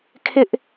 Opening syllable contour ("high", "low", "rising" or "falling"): high